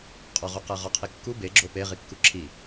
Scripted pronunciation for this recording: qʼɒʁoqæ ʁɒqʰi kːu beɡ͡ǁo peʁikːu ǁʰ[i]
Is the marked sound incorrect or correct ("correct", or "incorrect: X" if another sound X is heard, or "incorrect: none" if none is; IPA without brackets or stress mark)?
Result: correct